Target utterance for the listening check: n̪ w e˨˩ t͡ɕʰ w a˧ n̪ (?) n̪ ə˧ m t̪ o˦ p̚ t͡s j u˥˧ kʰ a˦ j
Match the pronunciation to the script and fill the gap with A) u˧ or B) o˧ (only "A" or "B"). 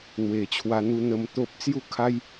A